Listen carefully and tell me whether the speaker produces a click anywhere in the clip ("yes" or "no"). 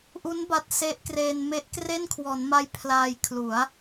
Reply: no